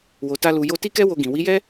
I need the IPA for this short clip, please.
w o˧ t a˦ l u˧ j o˧ t i˦ k ɛ˦ w o˧ ɡ ĩ˨ w i˨˦ j ɛ˦

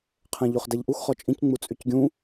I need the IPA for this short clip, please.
qʰ ɛ̃ ʎ o χ d ɛ ʎ ʔ u x χ ɔ t͡ʃʼ ĩ c ŋ͡m u t͡sʼ y c ɡʲ ũ

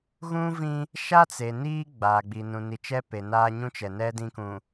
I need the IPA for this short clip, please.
ɣ ũ˦ v ĩ˦ | ʃ a˦ t͡s e˨ n iː˦ ɡ͡b aː˨ ɡ͡b i˨ n ũ˨ n i˨ t͡ʃ ɛ˦ p e˨ n aː˦ ɲ ũ˦ t͡ʃ ɛ˨ n ɛ˦ d ĩ˦ k ũ˨

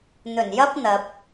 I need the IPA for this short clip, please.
n̪ ɵ˨˩ n j ɐ˥ p̚ n̪ ɐ˨ p̚

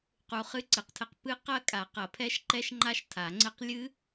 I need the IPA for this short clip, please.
q u˦˥ χ ɨ˦˥ ǀ ɨ˨˩˦ q tʰ ɘ˦˥ q p ɨ˦˥ q ɐ˦˥ kʼ a˨˩˦ q ɐ˨˩˦ pʰ ɛ˦˥ ʃ ǃ ɛ˦˥ ʃ ŋ͡ǃ a˦˥ ʃ tʰ a˨˩˦ ŋ͡ǀ ɘ˦˥ q lʲ ɨ˦˥

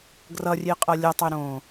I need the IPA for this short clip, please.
ɡ r ʌ rʲ e qʼ ʌ lʲ ʌ tˤ e ɾ õ

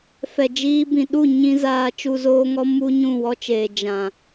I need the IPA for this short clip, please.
f ɛ˨ d͡ʒ iː˧ b ĩ˨ ɗ u˦˨ ɲ ĩ˧ z aː˧ t͡ʃ u˧ z oː˦ ŋ ɔ˦ m u˦ ɲ ũ˦˨ w ɔ˦ t͡ʃ eː˨ d͡ʒ ã˨

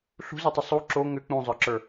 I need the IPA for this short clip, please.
ɬ ṳ z ɯ tˤ ə sˤ u ǁ o ŋ ʏ k͡p ũ zˤ ə˞ ǁ ə˞

